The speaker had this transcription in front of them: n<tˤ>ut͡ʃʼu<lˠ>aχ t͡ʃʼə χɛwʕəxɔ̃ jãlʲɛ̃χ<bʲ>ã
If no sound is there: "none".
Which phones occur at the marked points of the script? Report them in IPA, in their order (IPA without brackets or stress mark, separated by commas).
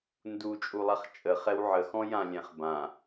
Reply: d, lˠ, b